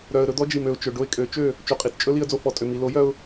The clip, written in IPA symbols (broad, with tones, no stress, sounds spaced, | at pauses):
ɾ œ˨ ə̯ ɾ ɵ˧ d̪ ɔ˦ d͡ʒ i˨ m ø˨ ʊ̯ t͡ʃ ɵ˨ ɖ o˦ ɪ̯ kʼ ø˨˦ t͡ʃ ø˦˨ | t͡ʃ o˨ qʼ i˨ t t͡ʃʼ ɵ˦ l i˧ ə̯ d͡z o˧ f ɔ˨ tʼ ø˨ m i˨ l o˨˦ j œ˧ ʊ̯